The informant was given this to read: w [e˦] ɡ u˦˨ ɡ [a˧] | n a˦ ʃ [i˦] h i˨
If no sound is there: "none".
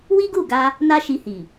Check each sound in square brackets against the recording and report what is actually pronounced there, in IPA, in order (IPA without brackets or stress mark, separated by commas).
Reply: i˦, a˧, i˧